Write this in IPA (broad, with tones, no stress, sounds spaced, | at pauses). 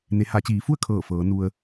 n e˩˧ h a˩˧ t͡ɕ iː˩˧ f u˥˨ ə̯ kʰ ɤː˧˩ f ɤː˩˧ n u˧ ə̯